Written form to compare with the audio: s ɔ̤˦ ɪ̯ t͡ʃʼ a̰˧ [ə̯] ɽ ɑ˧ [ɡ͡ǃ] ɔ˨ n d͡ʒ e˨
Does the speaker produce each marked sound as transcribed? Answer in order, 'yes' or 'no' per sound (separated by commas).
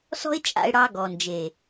no, no